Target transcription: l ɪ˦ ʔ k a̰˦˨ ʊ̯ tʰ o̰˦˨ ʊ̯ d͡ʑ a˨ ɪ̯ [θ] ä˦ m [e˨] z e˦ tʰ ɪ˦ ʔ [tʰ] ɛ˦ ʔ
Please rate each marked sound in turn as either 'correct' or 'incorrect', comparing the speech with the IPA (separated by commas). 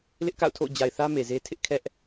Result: correct, correct, incorrect